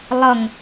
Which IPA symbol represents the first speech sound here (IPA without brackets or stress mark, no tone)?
lˠ